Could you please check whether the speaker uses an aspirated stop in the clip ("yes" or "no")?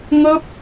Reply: no